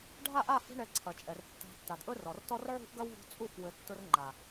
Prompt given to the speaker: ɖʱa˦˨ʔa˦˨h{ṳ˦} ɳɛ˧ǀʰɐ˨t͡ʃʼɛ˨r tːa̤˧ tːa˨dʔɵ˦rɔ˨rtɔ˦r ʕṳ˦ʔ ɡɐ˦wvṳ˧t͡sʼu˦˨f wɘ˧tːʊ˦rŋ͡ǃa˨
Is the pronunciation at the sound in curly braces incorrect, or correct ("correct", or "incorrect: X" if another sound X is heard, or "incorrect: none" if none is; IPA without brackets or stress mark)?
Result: incorrect: ṳ˧